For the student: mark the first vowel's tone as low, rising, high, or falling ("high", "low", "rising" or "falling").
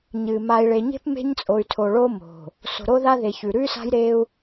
low